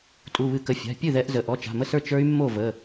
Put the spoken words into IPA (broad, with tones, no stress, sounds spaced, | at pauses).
tʼ u˩˧˩ β ɨ˧˩˧ k ə˩˧˩ fʲ a̤˩˧˩ pʲ ɨ˥˩ ð ɛ˦˥ ʔ z ə˩˧˩ ʔ ɔ˩˧˩ t͡ʃ a̤˩˧˩ m ə˥˩ s ə˞˥˩ t͡ʃ ə˞˦˥ y̯ mː o˥˩ v ə˩˧˩